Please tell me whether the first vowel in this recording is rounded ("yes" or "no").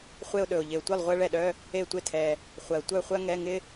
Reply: no